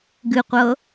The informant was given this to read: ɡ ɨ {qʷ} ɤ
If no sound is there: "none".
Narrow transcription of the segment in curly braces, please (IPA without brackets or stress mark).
qʷ